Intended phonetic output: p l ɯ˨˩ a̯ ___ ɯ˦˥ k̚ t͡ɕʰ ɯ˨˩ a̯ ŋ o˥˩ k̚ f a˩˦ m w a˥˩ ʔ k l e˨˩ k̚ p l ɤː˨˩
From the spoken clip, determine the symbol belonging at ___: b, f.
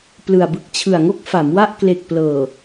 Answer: b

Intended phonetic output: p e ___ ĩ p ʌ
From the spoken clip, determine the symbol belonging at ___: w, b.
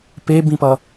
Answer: b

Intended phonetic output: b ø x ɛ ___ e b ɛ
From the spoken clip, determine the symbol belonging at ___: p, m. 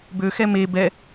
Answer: m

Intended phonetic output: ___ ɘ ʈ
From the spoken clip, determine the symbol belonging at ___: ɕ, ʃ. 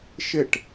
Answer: ʃ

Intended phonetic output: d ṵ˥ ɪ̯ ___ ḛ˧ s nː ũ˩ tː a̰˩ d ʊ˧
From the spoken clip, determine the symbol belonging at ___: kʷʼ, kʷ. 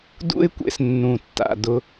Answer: kʷ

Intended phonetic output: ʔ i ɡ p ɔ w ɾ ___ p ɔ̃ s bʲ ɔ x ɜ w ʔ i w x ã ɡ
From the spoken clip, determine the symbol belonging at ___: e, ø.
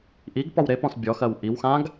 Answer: e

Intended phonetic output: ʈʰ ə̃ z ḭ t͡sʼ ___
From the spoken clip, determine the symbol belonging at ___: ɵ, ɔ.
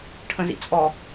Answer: ɔ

